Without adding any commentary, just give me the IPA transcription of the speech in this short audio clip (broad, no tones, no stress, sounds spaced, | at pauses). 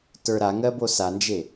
t ə˞ ɾ a ŋ ɜ b o s a n d͡ʒ e